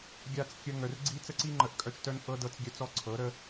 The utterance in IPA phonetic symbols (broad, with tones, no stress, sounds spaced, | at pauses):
ɡʲ a˧ t͡s kʲ ə˧ ŋ œ˨ r ɡ͡ǀ i˦ t͡s ə˦ ǀ i˦ ŋ͡ǃ ə˨˦ ʔ kʼ œ˧ t͡ʃ t œ˧ n ʔ ɤ˦ d ɤ˦˨ t͡s ɡʲ œ˦ t͡s ɔ˦ ǀʰ ɤ˨˦ ɾ ə˦